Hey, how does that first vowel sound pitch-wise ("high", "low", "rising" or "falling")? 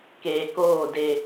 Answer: low